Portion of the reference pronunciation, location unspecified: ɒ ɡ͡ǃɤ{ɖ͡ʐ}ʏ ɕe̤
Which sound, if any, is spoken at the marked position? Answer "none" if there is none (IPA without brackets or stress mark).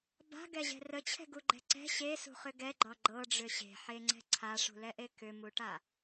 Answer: ɖ͡ʐ